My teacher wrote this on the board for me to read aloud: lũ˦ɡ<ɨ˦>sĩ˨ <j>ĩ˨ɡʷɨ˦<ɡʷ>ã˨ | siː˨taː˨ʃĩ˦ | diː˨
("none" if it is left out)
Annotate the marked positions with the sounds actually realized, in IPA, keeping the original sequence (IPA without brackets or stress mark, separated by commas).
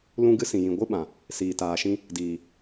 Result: ɨ˦, j, ɓ